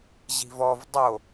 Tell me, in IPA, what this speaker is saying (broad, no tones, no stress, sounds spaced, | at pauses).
ʑ i̤ v ɔ v dˤ o